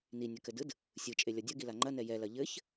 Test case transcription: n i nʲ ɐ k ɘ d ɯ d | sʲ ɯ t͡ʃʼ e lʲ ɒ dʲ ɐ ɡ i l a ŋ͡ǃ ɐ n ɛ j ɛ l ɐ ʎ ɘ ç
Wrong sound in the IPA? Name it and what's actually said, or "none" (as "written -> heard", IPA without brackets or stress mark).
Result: none